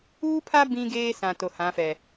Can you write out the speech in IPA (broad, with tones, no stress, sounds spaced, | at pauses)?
uː˦ pʰ a˦ b ĩ˦ ɡ eː˦ s ã˨ t o˨ h ã˨˦ f ɛ˨